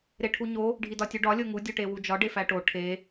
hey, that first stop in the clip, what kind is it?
aspirated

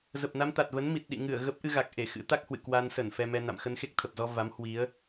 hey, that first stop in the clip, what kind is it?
plain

